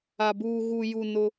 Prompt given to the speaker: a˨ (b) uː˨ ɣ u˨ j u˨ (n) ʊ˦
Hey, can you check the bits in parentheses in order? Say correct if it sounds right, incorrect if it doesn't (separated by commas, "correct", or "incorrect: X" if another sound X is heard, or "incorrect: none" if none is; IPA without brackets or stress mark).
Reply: correct, correct